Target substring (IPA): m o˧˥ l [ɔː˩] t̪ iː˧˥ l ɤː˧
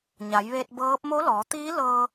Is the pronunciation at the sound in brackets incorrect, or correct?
incorrect